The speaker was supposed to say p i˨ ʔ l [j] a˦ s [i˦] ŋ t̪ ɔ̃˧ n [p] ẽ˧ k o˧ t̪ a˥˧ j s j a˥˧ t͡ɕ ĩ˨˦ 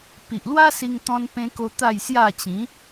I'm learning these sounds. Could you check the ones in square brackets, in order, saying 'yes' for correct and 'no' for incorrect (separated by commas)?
no, no, yes